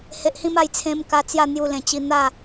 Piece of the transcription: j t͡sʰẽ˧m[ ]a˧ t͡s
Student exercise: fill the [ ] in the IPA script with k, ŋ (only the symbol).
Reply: k